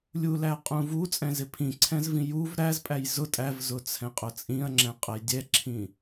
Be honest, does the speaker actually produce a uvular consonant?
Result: yes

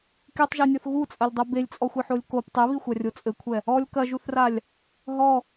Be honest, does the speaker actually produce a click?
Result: no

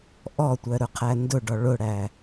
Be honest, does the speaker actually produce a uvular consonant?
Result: yes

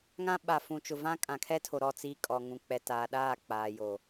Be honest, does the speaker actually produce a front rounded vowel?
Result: no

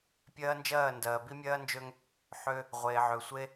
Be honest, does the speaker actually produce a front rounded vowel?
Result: yes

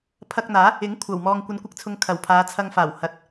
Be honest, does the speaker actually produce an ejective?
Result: no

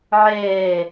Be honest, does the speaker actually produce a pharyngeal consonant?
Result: yes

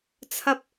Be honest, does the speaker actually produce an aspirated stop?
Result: yes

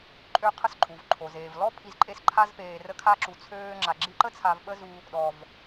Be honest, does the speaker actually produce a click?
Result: yes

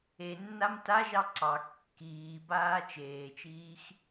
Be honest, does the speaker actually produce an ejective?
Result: no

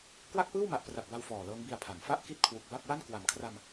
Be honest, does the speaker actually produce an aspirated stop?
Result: yes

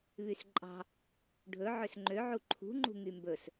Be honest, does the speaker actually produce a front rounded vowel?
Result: yes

